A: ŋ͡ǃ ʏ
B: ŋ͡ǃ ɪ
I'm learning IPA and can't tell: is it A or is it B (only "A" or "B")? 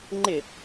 B